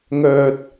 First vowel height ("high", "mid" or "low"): mid